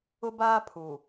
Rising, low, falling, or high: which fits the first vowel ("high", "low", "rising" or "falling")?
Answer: high